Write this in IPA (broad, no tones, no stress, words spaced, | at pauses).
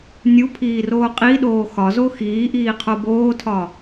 nʲupʰiːroː qʼiɗoː xɒzo xiːʔiːqʰo boːtʰɒ